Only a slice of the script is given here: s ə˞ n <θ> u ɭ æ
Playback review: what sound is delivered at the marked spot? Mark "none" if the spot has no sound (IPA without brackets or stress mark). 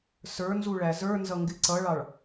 z